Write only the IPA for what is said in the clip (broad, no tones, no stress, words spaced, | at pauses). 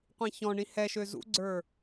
qʷĩçɔ̃ɳĩ hɛʃø zṵɡ͡ǀə˞